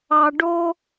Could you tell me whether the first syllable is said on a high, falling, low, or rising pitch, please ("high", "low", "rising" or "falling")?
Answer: low